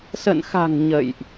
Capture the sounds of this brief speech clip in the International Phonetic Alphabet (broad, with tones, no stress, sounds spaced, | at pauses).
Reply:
s ə̰˧˨ n x a̤˨˩ ŋ ɲ ə̰˧˨ j ʔ